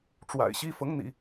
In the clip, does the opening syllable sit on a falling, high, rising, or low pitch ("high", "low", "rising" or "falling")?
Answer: low